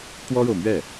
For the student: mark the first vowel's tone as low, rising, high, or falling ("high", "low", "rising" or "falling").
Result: high